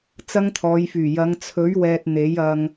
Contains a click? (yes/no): no